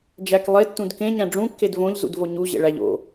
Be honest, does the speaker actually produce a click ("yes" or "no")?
no